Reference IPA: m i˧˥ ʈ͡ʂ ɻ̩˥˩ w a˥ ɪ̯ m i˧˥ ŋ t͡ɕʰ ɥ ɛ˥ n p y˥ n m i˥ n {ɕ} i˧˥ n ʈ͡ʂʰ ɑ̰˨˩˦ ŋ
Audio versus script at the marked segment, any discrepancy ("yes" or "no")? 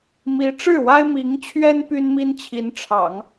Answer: yes